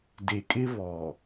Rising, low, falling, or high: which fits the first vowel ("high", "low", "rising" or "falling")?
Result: low